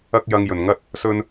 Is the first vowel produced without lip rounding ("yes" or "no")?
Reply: yes